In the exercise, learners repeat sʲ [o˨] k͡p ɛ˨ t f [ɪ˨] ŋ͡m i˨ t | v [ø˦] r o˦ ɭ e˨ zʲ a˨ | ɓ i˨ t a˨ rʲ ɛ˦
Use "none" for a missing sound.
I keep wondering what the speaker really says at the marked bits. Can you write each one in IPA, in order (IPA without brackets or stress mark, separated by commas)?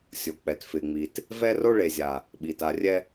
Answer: o˨, ɪ˨, ɛ˦